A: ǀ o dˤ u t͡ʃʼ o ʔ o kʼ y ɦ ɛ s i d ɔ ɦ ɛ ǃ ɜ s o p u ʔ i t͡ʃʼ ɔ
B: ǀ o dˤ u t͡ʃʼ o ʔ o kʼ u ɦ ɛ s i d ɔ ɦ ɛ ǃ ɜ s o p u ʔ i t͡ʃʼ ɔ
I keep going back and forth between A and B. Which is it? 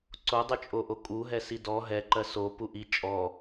B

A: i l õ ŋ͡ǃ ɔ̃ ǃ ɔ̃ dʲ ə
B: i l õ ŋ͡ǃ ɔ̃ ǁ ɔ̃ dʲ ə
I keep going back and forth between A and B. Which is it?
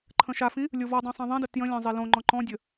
A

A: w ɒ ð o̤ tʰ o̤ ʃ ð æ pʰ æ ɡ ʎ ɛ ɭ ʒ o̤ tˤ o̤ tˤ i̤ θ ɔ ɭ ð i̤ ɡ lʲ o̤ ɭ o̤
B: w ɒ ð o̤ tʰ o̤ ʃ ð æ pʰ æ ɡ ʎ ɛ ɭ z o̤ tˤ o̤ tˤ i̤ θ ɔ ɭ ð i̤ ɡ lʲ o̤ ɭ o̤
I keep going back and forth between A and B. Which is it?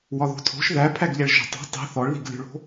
A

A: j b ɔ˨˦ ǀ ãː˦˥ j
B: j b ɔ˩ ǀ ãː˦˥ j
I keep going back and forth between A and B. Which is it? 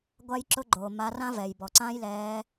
B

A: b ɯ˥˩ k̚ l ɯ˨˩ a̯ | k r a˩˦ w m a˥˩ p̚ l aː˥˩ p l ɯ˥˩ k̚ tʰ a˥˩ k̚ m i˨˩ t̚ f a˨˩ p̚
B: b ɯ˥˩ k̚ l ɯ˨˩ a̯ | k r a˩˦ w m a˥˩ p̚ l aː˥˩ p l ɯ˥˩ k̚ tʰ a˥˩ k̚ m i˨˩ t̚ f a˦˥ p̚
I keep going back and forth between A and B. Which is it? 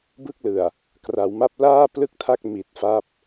B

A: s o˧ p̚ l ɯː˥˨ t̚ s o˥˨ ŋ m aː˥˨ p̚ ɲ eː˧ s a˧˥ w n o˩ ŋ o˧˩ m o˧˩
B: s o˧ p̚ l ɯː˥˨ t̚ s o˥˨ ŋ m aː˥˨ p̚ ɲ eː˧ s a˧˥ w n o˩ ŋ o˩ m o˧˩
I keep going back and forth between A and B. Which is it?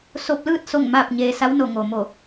B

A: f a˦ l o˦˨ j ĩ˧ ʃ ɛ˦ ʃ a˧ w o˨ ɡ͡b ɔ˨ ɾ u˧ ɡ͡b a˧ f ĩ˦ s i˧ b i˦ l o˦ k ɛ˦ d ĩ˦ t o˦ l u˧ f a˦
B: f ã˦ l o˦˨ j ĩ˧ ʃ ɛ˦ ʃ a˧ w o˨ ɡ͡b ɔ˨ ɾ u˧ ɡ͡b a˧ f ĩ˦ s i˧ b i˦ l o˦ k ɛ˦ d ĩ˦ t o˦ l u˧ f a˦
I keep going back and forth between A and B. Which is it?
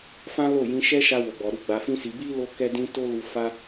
B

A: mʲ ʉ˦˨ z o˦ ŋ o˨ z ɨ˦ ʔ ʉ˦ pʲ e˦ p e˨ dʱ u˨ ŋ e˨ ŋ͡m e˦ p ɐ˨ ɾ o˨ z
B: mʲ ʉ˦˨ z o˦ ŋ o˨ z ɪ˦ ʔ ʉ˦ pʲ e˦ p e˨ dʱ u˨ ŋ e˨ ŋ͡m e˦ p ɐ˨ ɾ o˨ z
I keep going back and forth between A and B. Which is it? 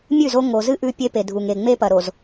A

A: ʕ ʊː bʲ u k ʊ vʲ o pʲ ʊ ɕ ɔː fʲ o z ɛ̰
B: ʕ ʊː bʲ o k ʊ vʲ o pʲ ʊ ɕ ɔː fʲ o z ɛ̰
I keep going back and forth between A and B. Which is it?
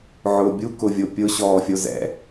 A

